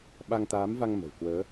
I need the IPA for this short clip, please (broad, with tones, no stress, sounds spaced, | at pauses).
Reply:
ɓ a˧ ŋ t̪ aː˨˦ m v a˧ ŋ m ə̤˨˩ w k w əː˨˦